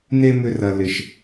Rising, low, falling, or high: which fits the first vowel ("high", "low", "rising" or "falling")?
high